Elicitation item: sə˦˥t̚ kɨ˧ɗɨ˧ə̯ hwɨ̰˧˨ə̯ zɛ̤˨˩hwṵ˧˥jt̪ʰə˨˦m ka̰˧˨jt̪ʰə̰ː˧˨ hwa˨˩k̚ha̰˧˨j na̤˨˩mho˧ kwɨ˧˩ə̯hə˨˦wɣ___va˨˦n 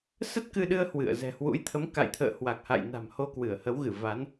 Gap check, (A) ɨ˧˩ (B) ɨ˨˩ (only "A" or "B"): A